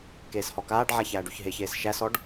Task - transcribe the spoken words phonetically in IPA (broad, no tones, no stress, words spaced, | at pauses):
keːshɔkaːɖʕa çæːɖʉçɦeçeːs ʃæsɔɖ